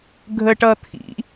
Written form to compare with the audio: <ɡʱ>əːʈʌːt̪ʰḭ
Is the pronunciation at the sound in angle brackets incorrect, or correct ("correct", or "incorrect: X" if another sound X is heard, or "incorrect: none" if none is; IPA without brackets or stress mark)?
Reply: correct